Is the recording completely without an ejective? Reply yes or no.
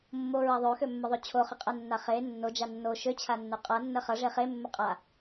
no